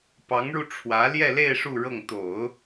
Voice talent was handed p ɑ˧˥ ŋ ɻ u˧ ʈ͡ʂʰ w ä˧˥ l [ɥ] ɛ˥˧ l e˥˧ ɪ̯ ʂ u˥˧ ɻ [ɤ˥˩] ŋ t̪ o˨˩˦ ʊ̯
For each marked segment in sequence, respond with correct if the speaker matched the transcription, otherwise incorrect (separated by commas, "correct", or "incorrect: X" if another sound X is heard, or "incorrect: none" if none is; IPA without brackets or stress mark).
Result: incorrect: j, correct